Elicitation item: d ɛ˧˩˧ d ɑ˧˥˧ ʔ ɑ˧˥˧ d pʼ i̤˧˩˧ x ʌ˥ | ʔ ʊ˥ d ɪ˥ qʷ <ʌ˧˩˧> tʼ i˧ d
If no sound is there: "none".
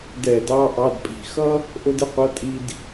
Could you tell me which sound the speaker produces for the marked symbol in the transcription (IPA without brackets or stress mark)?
ʌ˧˥˧